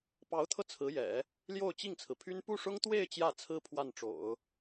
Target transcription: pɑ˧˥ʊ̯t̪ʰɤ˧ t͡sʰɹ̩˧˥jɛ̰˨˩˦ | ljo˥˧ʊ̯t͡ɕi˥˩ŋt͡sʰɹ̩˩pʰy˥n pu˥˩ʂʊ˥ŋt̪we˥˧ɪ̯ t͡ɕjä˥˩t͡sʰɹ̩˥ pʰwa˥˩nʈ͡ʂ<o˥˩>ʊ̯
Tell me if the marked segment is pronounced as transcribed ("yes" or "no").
no